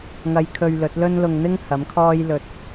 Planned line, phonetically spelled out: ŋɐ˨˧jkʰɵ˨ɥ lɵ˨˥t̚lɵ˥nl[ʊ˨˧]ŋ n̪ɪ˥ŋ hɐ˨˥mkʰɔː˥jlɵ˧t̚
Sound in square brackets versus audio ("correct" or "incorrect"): incorrect